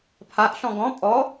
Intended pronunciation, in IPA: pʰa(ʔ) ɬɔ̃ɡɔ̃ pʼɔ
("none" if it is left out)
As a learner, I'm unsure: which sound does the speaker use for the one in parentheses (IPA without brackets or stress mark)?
ʔ